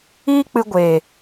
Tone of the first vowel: high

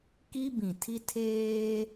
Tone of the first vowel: high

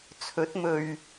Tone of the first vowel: rising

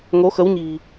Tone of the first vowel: rising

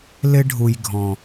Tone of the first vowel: high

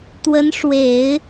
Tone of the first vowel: rising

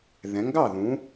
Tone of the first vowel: rising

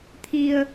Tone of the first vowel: low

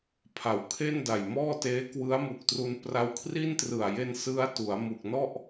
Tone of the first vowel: low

